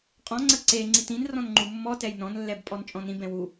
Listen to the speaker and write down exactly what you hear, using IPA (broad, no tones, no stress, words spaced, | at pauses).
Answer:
qʼɔ̃ ŋ͡ǀəǀe ŋ͡ǀitĩn rɔ̃nŋ͡ǃumːɔ tɛjnɔ̃n lːɛbpʼɔnt͡ʃʼɔ̃nĩ bɛ̃wu